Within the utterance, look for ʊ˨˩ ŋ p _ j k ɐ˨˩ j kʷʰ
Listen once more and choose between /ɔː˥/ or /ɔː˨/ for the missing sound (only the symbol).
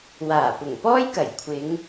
ɔː˥